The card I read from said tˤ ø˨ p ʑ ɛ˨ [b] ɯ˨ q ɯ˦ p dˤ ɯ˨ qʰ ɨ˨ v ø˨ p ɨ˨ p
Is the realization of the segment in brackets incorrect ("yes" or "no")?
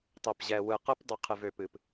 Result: yes